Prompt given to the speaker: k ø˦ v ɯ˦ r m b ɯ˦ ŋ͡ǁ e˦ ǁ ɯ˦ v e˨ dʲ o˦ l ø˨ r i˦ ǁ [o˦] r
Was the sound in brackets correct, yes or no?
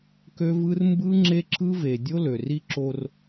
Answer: yes